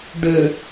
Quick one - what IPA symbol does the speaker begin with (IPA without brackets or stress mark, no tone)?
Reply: ɖ